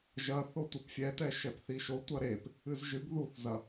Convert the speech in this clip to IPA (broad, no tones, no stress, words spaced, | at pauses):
ʒɐ θotʷɘpfʲɛtɛ ʃɛpθiʃo tʷɐɾep | ɨzʒɨɡ ðuθzɐ